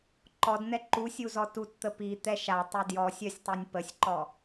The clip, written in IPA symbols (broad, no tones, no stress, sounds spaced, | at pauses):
ǃ ɔ d n̪ ɛ ǃ u sʲ u z ɔ t u t t̪ ə p i t̪ ɛ ʃ a tˤ ɛ d j ɔ sʲ œ sʲ tˤ ɛ nʲ p ə sʲ ǃ ɔ